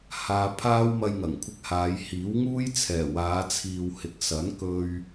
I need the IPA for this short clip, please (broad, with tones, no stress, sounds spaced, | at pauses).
h aː˧ pʰ aː˥ w m ɐ˧ j ŋ ɐ˨˩ ŋ kʷʰ ɪ˧ k̚ h aː˨˧ j h iː˨˥ w ŋ uː˥ j t͡sʰ ɛː˨˩ w aː˨˧ t͡sʰ iː˨ w h ɪ˨˥ k̚ s ɐ˨˥ n k ɵ˧ ɥ